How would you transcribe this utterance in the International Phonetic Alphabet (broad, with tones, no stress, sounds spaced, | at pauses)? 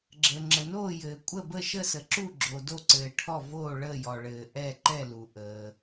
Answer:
ɡ͡ǁ ə˩ ŋ͡ǁ ə˩ n oː˥˨ j ɘː˩ kʷʼ ə˥˨ b ə˥˨ ʃ ə˥˨ s ə˩ ǁ u˥˨ ɡ͡ǁ o˩ d o˥˨ ǀ ɘː˩ ʈʰ ɔ˥˨ v oː˥˨ ɭ əː˥˨ j ɔ˩ ɭ ɘː˩ ʔ ɛ˥˨ ǃ ɛ˥˨ l u˩ ʔ əː˩